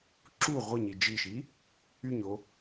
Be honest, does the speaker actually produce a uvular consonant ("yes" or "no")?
yes